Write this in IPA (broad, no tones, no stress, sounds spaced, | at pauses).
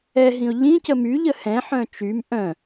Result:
ɛ ɦ ĩ ʊ̯ ʎ ĩ c ə m y ʎ ə h ɛ̃ ħ œ̃ t͡ʃ y m ʔ œ̃